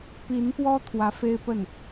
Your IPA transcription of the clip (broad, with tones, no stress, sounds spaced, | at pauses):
p i˧˥ n p w ɔ˥ t̪ʰ w ä˧˥ f e˥ ɪ̯ p ə˥˩ n